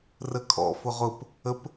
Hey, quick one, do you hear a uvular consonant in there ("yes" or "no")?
yes